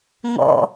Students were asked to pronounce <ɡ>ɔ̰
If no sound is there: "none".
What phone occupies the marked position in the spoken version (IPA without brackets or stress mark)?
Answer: ŋ